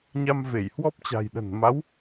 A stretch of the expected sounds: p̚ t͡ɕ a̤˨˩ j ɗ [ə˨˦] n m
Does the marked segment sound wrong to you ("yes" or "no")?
yes